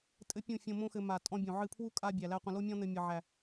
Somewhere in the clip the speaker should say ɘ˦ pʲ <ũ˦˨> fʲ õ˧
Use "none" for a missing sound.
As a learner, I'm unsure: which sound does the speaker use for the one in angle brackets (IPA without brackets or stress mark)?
ũ˦˨